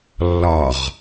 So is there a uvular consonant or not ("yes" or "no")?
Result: yes